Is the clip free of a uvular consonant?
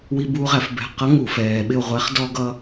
no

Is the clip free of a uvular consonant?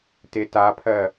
yes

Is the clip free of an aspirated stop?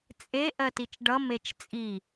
yes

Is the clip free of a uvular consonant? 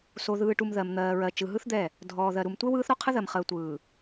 no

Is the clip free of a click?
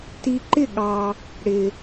no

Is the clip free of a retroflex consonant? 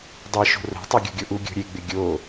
yes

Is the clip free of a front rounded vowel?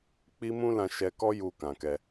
yes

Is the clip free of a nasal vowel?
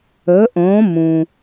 no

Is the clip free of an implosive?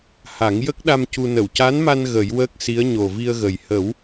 no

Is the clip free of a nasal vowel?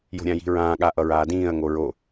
no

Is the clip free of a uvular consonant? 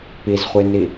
no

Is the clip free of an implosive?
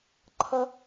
yes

